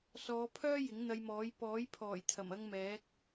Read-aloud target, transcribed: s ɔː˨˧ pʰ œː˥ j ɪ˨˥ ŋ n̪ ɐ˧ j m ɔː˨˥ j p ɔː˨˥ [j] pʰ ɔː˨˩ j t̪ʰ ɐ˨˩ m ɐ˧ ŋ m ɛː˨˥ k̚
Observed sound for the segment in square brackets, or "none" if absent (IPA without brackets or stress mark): j